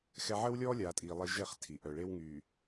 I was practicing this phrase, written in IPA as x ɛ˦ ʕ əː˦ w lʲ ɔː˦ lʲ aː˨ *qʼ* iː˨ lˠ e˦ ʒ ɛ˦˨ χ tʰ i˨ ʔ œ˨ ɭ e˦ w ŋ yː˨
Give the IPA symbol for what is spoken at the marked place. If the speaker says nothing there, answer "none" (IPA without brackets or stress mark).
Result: tʼ